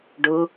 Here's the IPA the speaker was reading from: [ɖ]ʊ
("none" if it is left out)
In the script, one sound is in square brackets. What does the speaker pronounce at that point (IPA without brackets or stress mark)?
ɖ